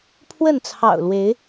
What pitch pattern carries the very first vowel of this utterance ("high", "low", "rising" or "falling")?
falling